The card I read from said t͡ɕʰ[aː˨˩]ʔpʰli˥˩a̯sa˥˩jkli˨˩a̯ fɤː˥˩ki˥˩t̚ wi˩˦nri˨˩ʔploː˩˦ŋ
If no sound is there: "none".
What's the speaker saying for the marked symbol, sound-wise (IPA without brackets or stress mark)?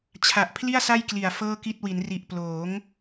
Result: a˨˩